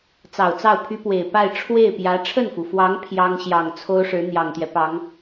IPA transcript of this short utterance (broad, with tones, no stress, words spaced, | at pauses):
t͡sɑ˨˩ʊ̯t͡sɑ˥˩ʊ̯pʰy˥pwe˨˩ɪ̯ pa˥˧ɪ̯ ʈ͡ʂʰwe˥˩ɪ̯pjä˧˥ ʈ͡ʂʰə˥˩nfu˩fwɑ˧˥ŋ pʰjɑ˥ŋɕjɑ˨˩ŋ t͡sʰo˥ʊ̯ʂɻ̩˧˥ n̪jɑ˨˩ŋt̪jɛ˦pɑ˧˥ŋ